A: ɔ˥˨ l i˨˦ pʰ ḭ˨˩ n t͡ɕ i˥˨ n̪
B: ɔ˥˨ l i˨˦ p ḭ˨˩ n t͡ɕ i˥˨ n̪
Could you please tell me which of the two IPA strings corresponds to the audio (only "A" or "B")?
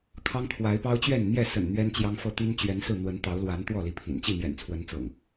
A